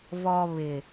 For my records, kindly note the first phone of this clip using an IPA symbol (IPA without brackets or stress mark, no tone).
v